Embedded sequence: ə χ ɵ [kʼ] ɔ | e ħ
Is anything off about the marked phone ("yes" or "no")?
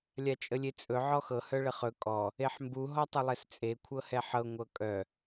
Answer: no